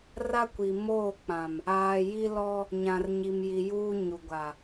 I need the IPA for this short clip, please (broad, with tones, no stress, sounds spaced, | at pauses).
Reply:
r a˦ kʷ i˨ m oː˦˨ k͡p ã˨ m | aː˨ j i˦ l ɔ˦ | ɲ ã˨ r ɲ i˨ m j i˨ j uː˦ ɲ u˨ ɡʷ a˨